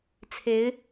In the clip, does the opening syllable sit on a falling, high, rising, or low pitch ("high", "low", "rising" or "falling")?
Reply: rising